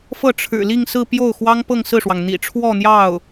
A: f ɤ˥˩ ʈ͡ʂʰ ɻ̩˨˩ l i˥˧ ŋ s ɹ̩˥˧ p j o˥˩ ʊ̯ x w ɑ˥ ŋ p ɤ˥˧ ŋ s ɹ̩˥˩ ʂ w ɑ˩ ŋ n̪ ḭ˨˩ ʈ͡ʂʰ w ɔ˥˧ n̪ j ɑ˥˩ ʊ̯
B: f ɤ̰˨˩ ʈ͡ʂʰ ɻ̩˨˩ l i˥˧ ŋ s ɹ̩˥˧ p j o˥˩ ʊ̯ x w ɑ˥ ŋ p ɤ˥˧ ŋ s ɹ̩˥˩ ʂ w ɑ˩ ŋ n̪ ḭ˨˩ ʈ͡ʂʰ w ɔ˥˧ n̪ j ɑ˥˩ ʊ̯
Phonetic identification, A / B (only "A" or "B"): A